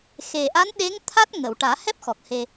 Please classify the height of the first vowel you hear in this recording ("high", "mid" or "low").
mid